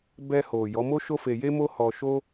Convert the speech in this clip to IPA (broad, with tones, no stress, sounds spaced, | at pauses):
b ɛ˧ h o˨ j ɔ˨˦ m o˦ ʃ o˦ f e˧ j e˦ m o˦ h ɔ˧ ʃ o˦